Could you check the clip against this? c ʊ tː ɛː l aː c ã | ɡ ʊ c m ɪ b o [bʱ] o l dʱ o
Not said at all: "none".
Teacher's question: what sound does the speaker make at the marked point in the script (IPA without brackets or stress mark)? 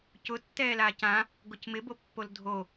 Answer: pː